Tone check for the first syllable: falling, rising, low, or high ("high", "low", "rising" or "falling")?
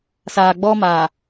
low